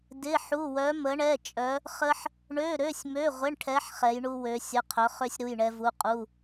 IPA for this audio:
d ɪ˧˥˧ ħ u˧˥˧ w œ˧˥ m ə˧˥ ɳ ɛ˧˥˧ t͡ʃʼ œ˧˥ | χ ə˥ ħ | ɳ ø˧˥˧ ɾ ø˧˥˧ sʲ m ø˧˥˧ ʁʷ ɪ˧˥˧ ɳ ʈʰ ɛ˧˥ ħ χ ɛ˧˥ j ɳ u˥ w ø˧˥ sʲ ə˧˥˧ qʰ œ˧˥ χ ø˥ sʲ ɾ u˧˥˧ j ɳ ɛ˥ v u˧˥˧ qʼ u˧˥˧

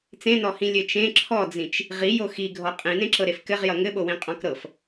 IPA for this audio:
t͡s ẽ n ɔ h ĩ lʲ ɘ t͡ʃ ẽ ǁʰ ɔ d͡z ĩ t͡ʃ | ʁ i j o x i ɡʱ ɔ qʼ ĩ n ẽ ǁ ɤ ɾ e f k ɘ ʁ j ʌ ŋ ɘ ɓ o w ĩ qʼ ɔ̃ k ɾ ɤ f

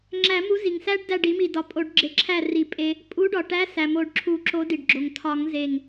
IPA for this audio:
ŋ͡ǁ æ˨˩˦ m u˨˥ z i˩ ŋ s æ˦˥ ɖ d æ˥˨ ɖ i˨˥ m i˧˩ d ɒ˨˥ pʼ o˨˩˦ ɖ ɡ͡ǁ e˨˥ ǁʰ æ˥˨ r i˧˩ pʼ e˦˥ | pʼ u˨˥ ɖ ɒ˩ ʈ æ˨˥ s æ˩ m o˨˩˦ ɖ ǁʰ u˨˩˦ ǁ o˨˥ d i˩ ɖ ɡ͡ǁ o˩ ŋ tʰ ɒ˨˩˦ ŋ z e˧˩ ŋ

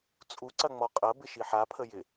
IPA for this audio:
t͡sʼ u ǀ ɐ ŋ͡m ɔ qʼ ɐ b ɪ ʃ i ħ a pʰ ə j ɪ

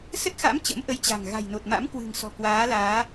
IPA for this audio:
s ə˦˥ t̚ x a̰˧˥ m t͡ɕ ə̰˧˥ m ʔ ə˨˦ j t͡ɕ a̤˨˩ ŋ ɣ a̤˨˩ j n o˨˩ t̚ m a̰˧˥ m k w ɨ̤˨˩ ŋ s ɔ̤˨˩ k w aː˨˦ l aː˨˦

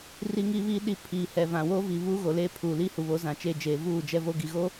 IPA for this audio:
r i˦ ŋ iː˦ β iː˦ ɗ i˦ pʰ iː˨ h ɛ˨ v ã˨ w oː˦ v i˨ β uː˦ ɣ o˨ l eː˦ pʰ uː˨ l iː˦ h u˨ β o˨˦ z ã˨ t͡ʃ eː˦ d͡ʒ eː˨ v uː˦˨ d͡ʒ ɛ˦ v o˦ ɡ i˨ ɣ o˦

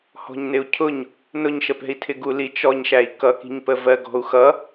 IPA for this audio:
h ɔ̤ ɲ n ɪ u̯ cʰ ʊ ɲ | n ʊ ɲ ʃ ə p ɛ̤ i̯ tʰ ɪ ɡ u l i t͡ʃ ɔ ɲ ʃ æ i̯ k ʌ k i̤ ɲ p ə v ɜ ɡ ɔ̤ u̯ x ʌ

